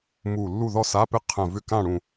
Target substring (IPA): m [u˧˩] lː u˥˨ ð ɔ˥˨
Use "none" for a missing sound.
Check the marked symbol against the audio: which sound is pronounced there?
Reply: u˧˩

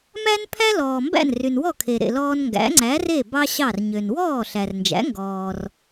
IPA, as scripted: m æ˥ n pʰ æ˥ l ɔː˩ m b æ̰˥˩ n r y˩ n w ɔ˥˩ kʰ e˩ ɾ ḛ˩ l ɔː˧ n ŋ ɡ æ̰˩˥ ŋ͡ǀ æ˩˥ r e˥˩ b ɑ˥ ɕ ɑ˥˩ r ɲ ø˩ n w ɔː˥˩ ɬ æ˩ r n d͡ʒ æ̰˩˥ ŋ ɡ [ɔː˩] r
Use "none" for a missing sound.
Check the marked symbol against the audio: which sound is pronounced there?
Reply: ɔː˩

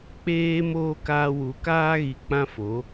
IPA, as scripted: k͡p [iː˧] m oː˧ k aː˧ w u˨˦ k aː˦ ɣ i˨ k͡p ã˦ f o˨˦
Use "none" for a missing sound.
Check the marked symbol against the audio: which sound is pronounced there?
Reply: eː˧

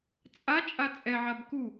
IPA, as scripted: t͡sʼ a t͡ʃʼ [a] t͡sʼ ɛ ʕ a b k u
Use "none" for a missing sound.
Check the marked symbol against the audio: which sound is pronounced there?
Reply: a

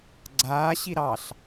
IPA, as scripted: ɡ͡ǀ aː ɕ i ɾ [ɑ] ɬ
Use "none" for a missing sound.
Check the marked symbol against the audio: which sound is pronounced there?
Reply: ɑ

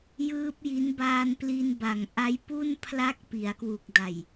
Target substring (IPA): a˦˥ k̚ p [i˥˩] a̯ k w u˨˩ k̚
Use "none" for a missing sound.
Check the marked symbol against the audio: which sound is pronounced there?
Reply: i˩˦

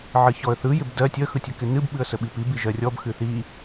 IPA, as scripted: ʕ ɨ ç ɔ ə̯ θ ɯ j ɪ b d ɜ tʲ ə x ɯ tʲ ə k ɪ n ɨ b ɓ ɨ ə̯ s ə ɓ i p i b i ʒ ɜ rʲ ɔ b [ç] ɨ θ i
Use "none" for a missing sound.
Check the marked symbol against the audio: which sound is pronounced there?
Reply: x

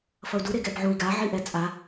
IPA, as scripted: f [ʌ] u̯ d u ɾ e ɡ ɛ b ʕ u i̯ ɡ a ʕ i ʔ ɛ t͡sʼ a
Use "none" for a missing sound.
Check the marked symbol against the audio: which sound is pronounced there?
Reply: ʌ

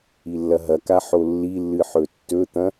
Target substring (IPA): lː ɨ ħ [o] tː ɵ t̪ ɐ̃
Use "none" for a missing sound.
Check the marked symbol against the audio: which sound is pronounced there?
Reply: ɵ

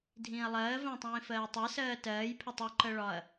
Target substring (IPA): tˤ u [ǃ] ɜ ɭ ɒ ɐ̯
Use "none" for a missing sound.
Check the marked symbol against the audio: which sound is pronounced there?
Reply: ǃ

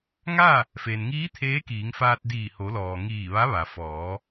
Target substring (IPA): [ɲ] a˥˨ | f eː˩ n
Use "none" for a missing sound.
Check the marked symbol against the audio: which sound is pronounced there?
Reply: ŋ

